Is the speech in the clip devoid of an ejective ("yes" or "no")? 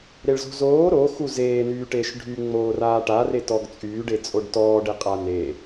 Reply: no